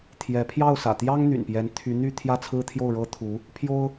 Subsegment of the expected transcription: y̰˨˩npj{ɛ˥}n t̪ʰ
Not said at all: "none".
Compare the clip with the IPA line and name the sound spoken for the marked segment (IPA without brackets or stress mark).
ɛ˧˥